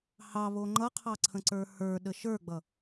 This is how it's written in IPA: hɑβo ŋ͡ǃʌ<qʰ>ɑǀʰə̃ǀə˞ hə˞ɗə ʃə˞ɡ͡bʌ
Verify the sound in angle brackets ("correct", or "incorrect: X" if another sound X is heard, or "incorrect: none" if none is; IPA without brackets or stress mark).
correct